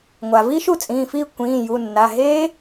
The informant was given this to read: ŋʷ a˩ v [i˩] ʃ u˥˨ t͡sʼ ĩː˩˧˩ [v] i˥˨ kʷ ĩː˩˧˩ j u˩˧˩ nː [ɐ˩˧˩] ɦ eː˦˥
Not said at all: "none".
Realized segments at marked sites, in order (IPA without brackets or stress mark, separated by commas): i˦˥, f, a˩˧˩